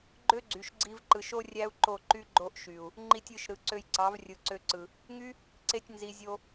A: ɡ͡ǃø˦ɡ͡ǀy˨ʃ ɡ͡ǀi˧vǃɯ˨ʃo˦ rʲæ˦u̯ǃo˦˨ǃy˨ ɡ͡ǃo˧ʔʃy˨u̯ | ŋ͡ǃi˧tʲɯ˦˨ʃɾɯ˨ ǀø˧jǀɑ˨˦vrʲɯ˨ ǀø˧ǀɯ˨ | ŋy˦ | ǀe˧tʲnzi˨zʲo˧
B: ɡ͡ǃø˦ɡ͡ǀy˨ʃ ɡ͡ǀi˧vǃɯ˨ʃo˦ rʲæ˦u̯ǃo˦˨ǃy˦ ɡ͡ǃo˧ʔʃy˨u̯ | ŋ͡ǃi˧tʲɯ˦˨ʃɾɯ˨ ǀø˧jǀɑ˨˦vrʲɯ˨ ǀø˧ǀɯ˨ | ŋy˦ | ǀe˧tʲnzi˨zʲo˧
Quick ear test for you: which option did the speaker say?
B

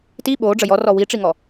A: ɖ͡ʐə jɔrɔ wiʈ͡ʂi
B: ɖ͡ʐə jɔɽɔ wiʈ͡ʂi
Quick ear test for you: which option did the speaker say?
A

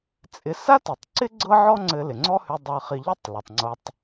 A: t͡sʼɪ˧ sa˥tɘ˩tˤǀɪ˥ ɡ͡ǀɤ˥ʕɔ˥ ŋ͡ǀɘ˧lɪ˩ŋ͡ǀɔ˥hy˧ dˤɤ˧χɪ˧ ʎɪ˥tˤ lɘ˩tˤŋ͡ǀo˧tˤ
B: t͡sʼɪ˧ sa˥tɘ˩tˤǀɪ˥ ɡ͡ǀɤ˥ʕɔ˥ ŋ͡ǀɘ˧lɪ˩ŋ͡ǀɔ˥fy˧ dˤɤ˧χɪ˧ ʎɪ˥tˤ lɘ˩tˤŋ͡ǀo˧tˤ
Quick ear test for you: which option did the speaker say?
A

